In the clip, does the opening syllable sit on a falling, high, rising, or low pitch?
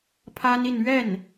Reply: high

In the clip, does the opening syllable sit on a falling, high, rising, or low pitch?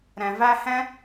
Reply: low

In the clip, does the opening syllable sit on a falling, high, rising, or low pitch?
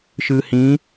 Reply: low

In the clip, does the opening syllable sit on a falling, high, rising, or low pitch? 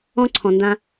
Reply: high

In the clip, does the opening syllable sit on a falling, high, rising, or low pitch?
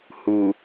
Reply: low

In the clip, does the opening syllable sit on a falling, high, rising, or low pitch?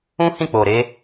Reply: high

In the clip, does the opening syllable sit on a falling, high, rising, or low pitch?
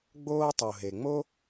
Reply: high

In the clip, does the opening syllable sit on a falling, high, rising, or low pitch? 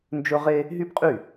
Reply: high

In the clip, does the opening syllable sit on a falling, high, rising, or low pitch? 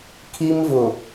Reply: high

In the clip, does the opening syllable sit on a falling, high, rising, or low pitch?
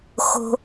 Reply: high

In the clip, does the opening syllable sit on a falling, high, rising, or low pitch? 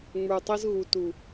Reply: low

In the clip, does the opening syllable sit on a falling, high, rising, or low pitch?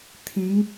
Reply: rising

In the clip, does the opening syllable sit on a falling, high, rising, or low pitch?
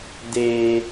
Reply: high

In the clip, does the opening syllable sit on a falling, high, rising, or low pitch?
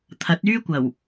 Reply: rising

